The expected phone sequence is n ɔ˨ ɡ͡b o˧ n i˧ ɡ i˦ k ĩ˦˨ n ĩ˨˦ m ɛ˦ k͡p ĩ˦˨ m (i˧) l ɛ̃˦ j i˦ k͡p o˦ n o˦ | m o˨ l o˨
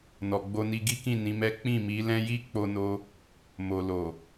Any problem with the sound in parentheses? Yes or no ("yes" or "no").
yes